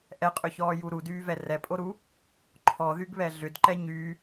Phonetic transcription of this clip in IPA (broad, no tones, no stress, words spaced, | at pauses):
ʔɛqʼʏçɔːju ɾudyːvɛ rɛpʼoɾu | ǃʰɔðyɡβɛ ɮʏd ǃɛɲy